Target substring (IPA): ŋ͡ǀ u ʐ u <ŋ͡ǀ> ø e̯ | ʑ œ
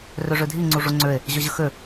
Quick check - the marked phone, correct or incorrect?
correct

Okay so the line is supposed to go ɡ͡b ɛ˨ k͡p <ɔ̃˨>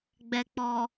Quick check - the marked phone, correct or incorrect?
incorrect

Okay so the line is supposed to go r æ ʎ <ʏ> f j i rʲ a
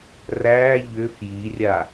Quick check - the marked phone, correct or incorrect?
correct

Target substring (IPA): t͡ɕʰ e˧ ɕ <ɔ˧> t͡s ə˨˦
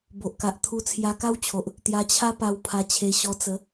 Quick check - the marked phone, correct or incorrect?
correct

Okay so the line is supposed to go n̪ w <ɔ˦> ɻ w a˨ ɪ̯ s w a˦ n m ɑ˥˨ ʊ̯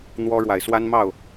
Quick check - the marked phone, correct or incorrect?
correct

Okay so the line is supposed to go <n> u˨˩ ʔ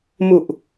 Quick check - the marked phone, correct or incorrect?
incorrect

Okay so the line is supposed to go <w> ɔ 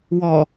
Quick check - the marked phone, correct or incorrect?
correct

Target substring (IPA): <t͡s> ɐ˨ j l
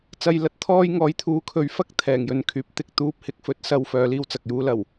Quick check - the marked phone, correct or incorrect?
correct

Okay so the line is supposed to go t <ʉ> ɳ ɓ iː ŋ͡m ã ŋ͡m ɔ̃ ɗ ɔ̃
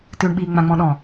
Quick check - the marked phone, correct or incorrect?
correct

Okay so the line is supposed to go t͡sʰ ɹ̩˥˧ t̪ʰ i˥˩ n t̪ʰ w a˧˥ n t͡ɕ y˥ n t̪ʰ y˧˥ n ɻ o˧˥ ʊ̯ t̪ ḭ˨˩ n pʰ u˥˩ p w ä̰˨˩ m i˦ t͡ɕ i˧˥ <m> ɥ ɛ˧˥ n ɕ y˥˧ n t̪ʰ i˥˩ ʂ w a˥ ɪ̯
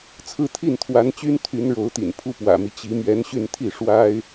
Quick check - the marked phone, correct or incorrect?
correct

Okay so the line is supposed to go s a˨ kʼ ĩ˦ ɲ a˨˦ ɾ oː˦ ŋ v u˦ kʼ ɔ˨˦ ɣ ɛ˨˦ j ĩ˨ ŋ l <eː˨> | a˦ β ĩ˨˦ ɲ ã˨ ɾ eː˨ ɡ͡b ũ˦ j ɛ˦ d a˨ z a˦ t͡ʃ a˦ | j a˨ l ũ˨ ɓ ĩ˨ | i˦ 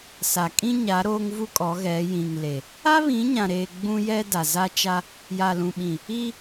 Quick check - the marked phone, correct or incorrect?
incorrect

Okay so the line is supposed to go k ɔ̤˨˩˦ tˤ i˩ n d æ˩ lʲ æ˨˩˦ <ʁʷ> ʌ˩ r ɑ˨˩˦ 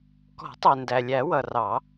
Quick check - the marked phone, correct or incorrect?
incorrect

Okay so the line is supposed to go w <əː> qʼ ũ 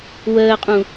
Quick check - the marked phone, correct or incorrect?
correct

